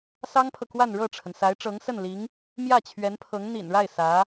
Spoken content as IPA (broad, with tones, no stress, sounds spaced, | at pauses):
s ɑ˥ ŋ pʰ ɤ˨ k w a˥˧ n ɻ ɤ˥˩ ʈ͡ʂʰ ə˩ n s a˧˥ ɪ̯ ʈ͡ʂ ɤ˧˥ ŋ s ə˥˩ n l i˧˥ ŋ | m j ä˥˩ t͡ɕʰ ɥ ɛ˧˥ n pʰ ɤ˧˥ ŋ n̪ ḭ˨˩ n ɻ a˥˩ ɪ̯ s ä˧˥